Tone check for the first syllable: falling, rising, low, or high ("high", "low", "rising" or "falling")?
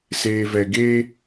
low